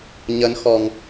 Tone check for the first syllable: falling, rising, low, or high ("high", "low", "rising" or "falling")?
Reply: rising